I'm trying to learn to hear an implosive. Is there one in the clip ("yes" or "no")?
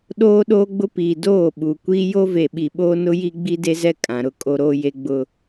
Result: yes